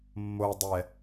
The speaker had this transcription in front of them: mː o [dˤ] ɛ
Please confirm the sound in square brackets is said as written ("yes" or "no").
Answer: yes